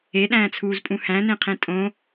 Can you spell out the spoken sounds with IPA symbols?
e ɗ æ̃ː t͡sʰ uː z pʼ ũ h æ̃ n ẽ qʰ ẽ tʼ õ

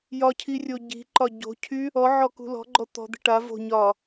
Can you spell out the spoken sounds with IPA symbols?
j ɒ cʰ i rʲ o ɟ i̤ ǃ ɒ ɟ o̤ cʰ y | ɔ ʕ ɔ k ṳ l ɔ̤ ɡ͡ǃ ɔ t̪ ɔ̤ d̪ i̤ ʈ a v o̤ ɲ ɒ

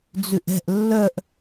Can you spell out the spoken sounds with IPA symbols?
d͡z ʉ ʔ ɛ̤ ʔ lː œ ʔ

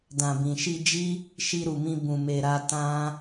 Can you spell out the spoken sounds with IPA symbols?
d ã˨ b ĩ˨ ʃ i˧ d͡ʒ i˦ | ʃ i˧ ɾ u˨ m ĩ˧ b ũ˨ m e˨ ɾ a˧ t ã˦

